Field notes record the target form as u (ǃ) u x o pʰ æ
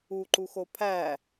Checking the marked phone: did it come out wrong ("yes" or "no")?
no